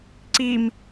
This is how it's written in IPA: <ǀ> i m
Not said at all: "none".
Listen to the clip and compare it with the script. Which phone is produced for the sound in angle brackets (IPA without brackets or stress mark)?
ǀ